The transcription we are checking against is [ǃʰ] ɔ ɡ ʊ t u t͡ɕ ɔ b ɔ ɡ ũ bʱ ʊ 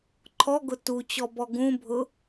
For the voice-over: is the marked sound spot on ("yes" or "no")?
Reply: yes